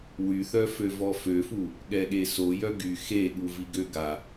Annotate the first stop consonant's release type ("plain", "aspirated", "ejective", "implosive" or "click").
implosive